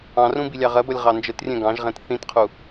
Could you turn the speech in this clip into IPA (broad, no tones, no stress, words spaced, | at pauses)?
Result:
ɑ̃rũ bilʲɑʁɜbʌlʲ ʁɑnd͡ʒətrʲɛ̃ ɡɑ̃ʒʁɛ̃t θĩtqʰu